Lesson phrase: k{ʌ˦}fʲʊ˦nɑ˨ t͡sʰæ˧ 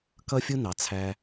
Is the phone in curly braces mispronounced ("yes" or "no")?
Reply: no